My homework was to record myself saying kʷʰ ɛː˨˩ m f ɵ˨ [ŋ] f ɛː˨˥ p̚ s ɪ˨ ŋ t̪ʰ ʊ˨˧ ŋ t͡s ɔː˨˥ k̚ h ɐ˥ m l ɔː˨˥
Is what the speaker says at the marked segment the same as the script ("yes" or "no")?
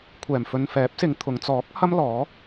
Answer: no